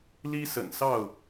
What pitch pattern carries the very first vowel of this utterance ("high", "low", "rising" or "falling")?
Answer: high